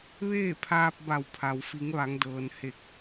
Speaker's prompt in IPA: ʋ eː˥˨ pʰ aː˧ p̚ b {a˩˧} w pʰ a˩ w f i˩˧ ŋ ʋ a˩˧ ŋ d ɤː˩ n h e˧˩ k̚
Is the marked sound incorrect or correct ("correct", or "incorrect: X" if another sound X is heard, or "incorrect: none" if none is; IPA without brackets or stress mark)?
incorrect: a˧˩